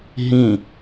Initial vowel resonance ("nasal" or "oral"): nasal